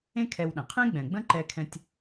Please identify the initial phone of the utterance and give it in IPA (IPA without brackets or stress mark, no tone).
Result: ẽ